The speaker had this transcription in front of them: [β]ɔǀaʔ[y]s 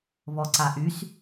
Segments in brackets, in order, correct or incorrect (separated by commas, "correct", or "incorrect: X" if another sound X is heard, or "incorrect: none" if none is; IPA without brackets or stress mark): correct, correct